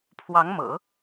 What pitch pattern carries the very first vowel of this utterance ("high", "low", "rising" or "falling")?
rising